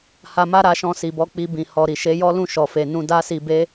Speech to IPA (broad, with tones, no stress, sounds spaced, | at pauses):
h a˧ m a˦ ɾ a˧ ʃ ɔ̃˧ s i˨ b ɔ˨˦ k͡p i˧ b ĩ˨ h ɔ˨ ɾ i˨ ʃ e˨˦ j ɔ˦ l ũ˦˨ ʃ ɔ˨ f e˨ n ũ˧ d a˦ s i˧ b e˦